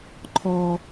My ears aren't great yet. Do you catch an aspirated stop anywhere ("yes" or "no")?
yes